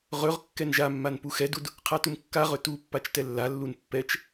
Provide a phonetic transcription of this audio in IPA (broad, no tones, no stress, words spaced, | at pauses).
ʁɵʁ kːɛnʒamːan puxɛdud | qʰatumkːaʁɵ tupːat͡ʃ tɛlːalːun pːɛt͡ʃ